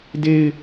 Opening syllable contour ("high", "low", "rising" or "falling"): high